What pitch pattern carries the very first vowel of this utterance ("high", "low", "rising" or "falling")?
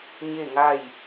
falling